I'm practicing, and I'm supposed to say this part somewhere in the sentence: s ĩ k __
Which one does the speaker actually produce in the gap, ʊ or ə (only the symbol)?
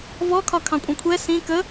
ə